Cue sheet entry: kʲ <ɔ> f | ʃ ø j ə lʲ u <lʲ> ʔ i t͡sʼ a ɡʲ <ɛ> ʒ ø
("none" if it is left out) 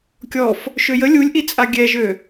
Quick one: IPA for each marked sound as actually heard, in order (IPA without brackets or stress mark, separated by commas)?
ɔ, lʲ, ɛ